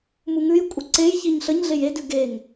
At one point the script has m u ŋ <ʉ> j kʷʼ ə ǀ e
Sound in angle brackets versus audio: correct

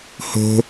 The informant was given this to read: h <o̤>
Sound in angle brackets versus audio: correct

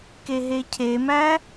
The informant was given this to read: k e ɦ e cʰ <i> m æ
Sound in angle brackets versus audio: incorrect: e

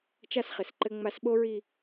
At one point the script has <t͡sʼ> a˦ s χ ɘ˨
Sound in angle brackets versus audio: incorrect: t͡ʃ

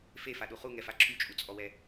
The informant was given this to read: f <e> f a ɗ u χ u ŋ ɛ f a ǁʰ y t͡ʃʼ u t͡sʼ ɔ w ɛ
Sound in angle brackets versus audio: correct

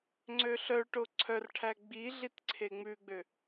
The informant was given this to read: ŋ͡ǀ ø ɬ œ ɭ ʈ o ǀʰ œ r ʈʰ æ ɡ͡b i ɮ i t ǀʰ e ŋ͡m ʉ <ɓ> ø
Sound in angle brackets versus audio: incorrect: ɡ͡b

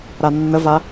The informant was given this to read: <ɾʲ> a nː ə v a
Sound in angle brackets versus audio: incorrect: ɾ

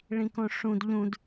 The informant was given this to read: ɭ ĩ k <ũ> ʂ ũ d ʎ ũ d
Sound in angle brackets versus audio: incorrect: õ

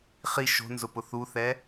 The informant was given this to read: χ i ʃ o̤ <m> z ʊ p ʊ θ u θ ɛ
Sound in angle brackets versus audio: incorrect: n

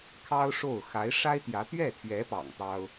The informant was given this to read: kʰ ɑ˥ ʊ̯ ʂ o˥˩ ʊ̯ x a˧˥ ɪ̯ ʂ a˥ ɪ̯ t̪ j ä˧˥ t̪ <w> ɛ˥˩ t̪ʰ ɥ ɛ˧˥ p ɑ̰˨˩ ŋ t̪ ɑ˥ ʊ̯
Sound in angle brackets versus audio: incorrect: ɥ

